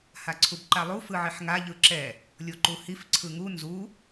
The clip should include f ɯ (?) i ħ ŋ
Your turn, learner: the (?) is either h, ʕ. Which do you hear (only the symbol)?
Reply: ʕ